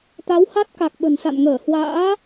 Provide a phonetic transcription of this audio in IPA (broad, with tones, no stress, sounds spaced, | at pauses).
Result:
t̪ a˨˦ w h a˦˥ t̚ k a˨˩ k̚ ɓ ə̤˨˩ n s a̰˧˨ n ŋ əː˧˩ h w a̰ː˧˥